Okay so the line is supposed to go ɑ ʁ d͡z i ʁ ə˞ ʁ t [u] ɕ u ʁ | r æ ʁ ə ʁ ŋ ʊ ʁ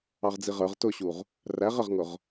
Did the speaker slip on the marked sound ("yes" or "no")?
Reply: yes